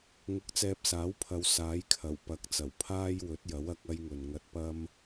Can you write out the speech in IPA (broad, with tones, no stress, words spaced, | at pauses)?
ŋʊ˧k̚t͡sɛː˧p̚saː˨˥wpʰɐ˨˧w saː˨˥jkʰɐ˨˩w pɐ˨˥k̚t͡sɐ˨˩w pʰaː˧j wɵ˨˥t̚jɐ˨˥w ɐ˨˥k̚ɐ˥jŋɵ˨n ŋɐ˧t̚pɐ˥m